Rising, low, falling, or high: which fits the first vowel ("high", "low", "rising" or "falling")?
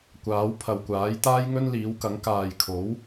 rising